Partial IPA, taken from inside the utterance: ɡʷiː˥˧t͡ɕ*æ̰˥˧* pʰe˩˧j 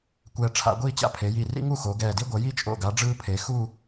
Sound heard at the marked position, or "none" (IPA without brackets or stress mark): a̰˥˧